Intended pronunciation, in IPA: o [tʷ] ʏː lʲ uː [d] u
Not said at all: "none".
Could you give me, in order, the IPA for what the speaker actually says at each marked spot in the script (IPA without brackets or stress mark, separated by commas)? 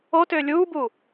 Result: t, b